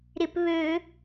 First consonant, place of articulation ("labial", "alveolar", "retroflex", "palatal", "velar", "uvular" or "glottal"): alveolar